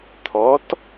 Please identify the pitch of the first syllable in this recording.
rising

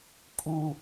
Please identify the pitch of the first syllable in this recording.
high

